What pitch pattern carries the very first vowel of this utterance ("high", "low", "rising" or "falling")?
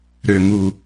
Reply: low